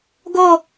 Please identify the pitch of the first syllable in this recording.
falling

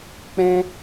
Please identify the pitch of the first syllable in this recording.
high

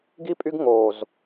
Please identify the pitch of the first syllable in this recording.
high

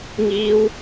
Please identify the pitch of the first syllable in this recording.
high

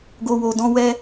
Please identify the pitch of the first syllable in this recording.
low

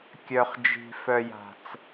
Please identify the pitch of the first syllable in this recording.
low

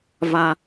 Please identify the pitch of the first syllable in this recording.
high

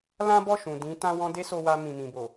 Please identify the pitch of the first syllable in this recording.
high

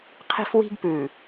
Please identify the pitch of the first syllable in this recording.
high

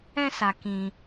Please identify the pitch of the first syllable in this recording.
high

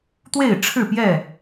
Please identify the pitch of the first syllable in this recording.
falling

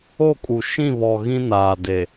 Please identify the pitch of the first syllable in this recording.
falling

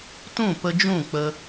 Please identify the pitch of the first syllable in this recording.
falling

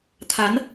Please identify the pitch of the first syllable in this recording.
rising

